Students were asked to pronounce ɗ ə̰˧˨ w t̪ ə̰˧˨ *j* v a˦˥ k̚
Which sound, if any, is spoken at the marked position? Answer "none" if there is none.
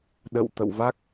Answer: w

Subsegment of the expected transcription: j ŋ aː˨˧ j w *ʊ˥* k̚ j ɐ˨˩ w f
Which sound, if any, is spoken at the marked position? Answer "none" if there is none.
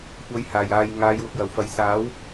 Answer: ʊ˨˥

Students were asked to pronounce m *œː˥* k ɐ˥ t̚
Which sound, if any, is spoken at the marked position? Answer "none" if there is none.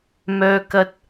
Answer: œː˥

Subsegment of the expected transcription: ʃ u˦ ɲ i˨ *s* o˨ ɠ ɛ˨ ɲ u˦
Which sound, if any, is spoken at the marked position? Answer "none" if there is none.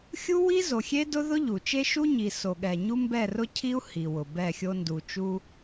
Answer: s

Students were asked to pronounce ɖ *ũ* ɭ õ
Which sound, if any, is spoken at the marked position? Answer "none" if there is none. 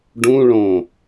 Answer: ũ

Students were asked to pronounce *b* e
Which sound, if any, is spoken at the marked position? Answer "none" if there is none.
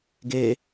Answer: ɡ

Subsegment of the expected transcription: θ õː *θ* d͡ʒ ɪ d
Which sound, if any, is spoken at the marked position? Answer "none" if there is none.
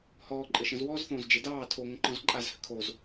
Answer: z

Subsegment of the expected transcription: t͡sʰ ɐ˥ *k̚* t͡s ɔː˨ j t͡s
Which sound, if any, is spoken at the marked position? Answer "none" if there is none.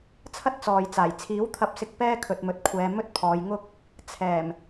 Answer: t̚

